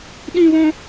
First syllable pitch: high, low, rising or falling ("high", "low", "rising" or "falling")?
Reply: high